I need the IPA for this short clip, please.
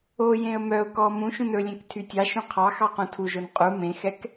o j ẽ ə̯ m œ ʊ̯ k ɔ m ũ ʃ ũ n ɵ lʲ ẽ k tʰ y tʲ ɑ ʃ ũ qʰ ɑ x ɑ q ũ tʰ u ʒ o n qʼ u m ẽ x ɛ k

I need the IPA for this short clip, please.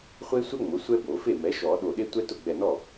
χʷ e˥ sʷ ɛ˥ ŋ͡m ʊ˩˥ sʷ ɛ˥ b o˨˩˦ f e˥˩ m ɛ˩˥ ʃ ɔ˨˩˦ ɗ o˧˩ ɗ e˥ tʷ ɛ˥ t ʊ˥˩ ɡ͡b ɛ˧˩ n ɔ˥˩

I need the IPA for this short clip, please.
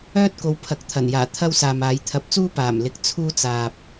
œː˥ t̚ k o˨˧ w pʰ ɐ˨ k̚ t̪ʰ ɐ˨˩ n j aː˨˩ t̪ʰ ɐ˥ w s aː˨ m aː˨˧ j t̪ʰ ɐ˨˥ p̚ t͡s uː˥ p aː˨˩ m l ɪ˧ k̚ t͡sʰ uː˥ t͡s aː˨ p̚

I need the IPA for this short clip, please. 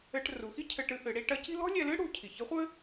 ɘ˧ ʈ r u˩˧ x i˥ cʰ ɘ˧ ʈ ɨ˧ ʔ ɨ˩˧ ɽ i˧ ʈ ɐ˧˥ c i̤˥ l ɔ̤˥ lʲ ɛ˧ l ɨ˥ ɽ ṳ˩˧ cʰ i˩ ç ɘ˧˥ χʷ ɘ˥

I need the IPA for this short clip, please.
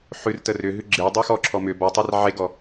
ħ ʉ r t ə r ʏ ɦ ʉ ɡ͡ǁ e dˤ ʉ x ɔ ǁʰ ɔ m ʏ b ɔ tˤ e r ʕ e ɡ ɔ

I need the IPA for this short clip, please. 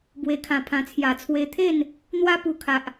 b w e˧ kʰ ã˧ pʰ ã˧ t͡sʰ j a˨˩ t͡sʰ w e˧ t̪ʰ e˥˧ n | n̪ w a˦ p u˧ kʰ a˨ ʔ

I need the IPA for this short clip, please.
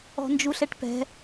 ɔ̤ n d͡ʒ u ɬ ɛ ʈ p ɛ̤

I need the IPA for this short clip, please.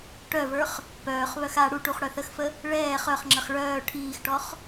ʈ œ v ə˞ χ | p œː χ β œ x a ɽ u ʈ u χ ɽ œ θ ə x f ə | ɭ ɛː χ œ χ ŋ͡ǁ ə χ ɭ œː ʈʰ iː x ʈ ɔ χ

